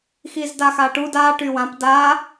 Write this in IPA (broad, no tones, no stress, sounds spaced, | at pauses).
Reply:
x i z d a x a ʈ u d a ʈ y w ã p d a